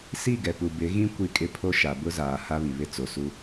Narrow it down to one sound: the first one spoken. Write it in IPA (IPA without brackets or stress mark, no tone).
s